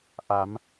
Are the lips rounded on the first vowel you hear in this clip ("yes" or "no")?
no